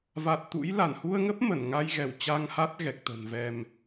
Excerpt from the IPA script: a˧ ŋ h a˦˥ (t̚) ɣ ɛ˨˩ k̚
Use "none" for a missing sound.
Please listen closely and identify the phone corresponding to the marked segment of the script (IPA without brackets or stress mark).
t̚